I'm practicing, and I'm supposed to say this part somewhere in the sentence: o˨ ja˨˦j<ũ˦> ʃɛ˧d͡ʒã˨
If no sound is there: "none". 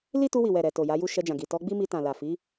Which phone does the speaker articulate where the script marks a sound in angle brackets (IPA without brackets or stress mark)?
u˦